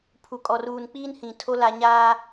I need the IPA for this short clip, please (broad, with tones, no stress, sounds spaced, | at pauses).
pʰ u˨ kʼ ɔ˨ r uː˨ n k͡p iː˦ n h ĩ˨ tʰ o˦ l a˨ ɲ aː˦